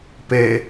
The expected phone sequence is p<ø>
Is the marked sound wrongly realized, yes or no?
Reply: yes